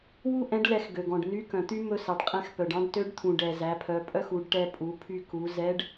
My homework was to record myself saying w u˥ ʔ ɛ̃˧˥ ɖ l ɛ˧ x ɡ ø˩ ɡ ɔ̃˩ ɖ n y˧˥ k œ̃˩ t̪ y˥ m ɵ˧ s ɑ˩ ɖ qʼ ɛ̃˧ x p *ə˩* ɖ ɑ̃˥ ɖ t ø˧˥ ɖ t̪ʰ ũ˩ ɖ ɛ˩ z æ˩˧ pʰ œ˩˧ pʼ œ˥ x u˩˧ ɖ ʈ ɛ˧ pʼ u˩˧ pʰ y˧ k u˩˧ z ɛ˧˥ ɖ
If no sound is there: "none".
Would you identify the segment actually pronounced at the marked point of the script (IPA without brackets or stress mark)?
œ˩